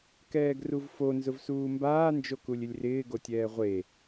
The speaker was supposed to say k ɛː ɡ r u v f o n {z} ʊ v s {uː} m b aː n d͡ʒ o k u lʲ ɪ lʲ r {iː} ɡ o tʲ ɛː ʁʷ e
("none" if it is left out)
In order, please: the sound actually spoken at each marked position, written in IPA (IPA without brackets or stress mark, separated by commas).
z, uː, ɪː